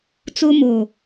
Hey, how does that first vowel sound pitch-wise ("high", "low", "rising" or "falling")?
high